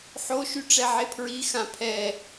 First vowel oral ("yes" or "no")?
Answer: yes